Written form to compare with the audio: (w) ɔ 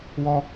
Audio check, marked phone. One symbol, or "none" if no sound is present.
w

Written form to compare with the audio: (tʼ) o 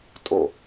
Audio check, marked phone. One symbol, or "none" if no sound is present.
tʼ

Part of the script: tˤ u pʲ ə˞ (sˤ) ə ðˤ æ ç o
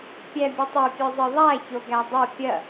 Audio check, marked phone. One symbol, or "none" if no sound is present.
zˤ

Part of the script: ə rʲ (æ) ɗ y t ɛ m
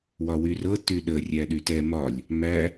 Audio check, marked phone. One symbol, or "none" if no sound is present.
æ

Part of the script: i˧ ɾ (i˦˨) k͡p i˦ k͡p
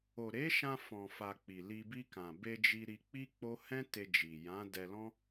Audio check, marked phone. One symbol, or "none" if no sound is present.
i˧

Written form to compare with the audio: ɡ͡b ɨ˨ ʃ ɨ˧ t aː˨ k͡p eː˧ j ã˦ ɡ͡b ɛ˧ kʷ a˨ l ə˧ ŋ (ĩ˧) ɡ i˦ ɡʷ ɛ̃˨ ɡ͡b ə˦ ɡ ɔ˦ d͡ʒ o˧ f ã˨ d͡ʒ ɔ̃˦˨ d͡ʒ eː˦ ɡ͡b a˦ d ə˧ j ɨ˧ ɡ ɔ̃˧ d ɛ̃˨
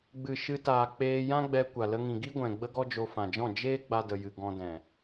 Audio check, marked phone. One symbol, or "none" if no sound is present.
ĩ˨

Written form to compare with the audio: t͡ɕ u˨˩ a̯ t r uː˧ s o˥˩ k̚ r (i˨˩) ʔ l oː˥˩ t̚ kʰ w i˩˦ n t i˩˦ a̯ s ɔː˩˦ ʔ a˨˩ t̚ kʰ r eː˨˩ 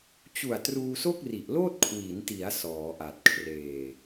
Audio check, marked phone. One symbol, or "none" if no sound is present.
i˨˩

